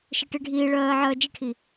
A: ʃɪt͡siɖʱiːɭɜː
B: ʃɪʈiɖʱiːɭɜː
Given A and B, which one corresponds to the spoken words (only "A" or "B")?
B